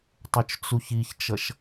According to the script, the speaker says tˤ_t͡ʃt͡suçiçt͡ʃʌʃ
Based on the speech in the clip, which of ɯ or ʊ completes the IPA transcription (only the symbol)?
ʊ